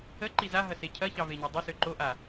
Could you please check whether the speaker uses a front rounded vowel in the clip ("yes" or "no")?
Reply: yes